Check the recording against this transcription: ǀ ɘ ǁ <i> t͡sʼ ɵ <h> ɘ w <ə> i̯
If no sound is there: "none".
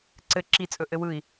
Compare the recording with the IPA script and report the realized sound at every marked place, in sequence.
i, ʔ, ɯ

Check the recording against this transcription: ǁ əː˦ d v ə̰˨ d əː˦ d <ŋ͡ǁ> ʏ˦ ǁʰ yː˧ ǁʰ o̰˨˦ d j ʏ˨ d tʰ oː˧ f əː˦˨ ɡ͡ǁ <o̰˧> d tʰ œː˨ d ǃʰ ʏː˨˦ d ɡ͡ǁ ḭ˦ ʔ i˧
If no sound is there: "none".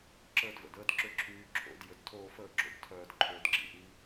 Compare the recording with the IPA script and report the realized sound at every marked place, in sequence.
ǁ, o̰˦

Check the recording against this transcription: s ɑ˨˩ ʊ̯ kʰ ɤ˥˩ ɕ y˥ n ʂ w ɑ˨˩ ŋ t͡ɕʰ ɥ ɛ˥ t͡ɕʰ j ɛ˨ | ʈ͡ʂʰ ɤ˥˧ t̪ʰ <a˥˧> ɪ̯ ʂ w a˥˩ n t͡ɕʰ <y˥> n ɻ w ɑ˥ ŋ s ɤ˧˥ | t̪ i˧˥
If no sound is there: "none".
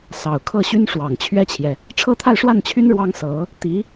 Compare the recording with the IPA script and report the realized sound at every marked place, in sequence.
a˥˧, y˥

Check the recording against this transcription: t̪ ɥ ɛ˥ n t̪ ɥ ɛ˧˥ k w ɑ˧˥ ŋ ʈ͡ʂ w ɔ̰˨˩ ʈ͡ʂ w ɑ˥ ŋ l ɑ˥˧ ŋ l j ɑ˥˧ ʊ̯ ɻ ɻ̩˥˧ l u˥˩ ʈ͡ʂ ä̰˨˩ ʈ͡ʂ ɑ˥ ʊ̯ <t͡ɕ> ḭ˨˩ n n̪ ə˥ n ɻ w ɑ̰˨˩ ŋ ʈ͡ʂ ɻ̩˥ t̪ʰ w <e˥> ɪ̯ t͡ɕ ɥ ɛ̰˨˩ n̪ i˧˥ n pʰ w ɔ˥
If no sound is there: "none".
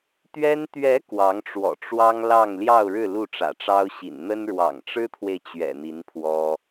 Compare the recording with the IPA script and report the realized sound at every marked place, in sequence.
ɕ, e˨

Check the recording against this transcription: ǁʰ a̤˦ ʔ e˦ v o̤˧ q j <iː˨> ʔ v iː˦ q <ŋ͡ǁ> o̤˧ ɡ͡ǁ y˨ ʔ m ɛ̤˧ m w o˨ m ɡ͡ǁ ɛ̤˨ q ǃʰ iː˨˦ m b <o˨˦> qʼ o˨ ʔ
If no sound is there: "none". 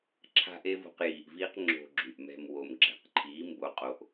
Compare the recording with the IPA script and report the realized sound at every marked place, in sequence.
iː˨, ŋ͡ǁ, o˨˦

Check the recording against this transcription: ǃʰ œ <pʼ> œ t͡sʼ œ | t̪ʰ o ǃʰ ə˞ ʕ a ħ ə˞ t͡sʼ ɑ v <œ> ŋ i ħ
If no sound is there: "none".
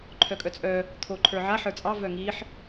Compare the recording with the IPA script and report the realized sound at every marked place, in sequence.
kʼ, œ

